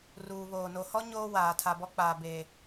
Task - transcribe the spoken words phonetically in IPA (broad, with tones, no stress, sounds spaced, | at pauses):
r uː˨ β oː˨ n o˨ h ɔ˦ ɲ oː˦ w aː˨ tʰ a˨ b ɔ˦ k͡p aː˨ b eː˨